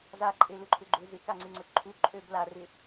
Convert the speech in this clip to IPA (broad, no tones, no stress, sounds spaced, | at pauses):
z a ǃʼ e l ʏ ǃʰ ʏ ɡ͡ǃ ʏ z ɪ k a ŋ͡ǀ e ŋ͡ǀ ʊ t ǃʰ u ǃʼ ø b l a r ɪ